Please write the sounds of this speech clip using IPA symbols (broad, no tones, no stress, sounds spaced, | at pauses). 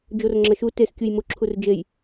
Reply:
d͡ʒ o r ŋ͡ǁ ɐ ʃ u t e s kʲ u j m u ǁʰ u r d͡ʒ e j